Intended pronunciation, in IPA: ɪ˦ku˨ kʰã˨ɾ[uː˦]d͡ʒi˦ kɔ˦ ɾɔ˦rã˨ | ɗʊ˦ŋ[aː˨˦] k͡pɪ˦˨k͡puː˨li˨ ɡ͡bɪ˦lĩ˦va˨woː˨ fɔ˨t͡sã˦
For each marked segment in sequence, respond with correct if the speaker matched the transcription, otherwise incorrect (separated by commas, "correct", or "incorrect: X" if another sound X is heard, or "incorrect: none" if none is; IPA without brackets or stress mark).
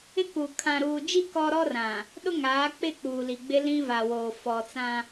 incorrect: uː˨, correct